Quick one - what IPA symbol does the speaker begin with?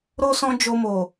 ɾ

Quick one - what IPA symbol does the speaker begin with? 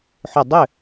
ħ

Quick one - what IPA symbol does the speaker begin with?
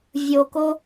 vʲ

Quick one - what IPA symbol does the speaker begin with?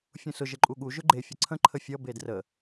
fʲ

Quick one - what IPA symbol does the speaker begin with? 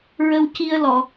ɹ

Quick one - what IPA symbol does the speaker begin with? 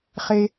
χ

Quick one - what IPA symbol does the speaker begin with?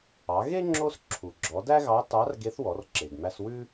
ɑ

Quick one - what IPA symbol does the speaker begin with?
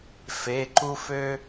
f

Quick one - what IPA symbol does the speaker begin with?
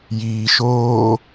j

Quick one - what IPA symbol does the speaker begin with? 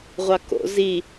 ʁʷ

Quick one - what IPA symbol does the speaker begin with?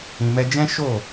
ĩ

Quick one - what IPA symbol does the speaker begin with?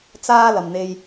t͡s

